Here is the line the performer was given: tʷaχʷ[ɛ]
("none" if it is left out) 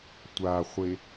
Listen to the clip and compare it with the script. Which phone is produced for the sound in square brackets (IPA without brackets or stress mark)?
e